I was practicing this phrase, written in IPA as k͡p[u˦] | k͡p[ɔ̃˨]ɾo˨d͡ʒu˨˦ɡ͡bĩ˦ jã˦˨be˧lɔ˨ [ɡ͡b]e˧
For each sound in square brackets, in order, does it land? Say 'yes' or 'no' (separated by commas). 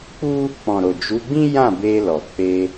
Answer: yes, yes, no